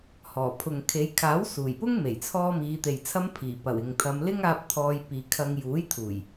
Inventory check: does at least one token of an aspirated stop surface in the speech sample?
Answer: yes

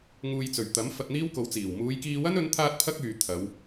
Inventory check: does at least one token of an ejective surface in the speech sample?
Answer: no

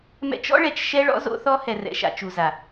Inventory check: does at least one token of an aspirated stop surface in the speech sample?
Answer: no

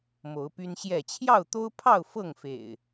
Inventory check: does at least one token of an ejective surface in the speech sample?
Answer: no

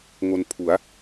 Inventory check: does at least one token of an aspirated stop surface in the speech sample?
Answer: yes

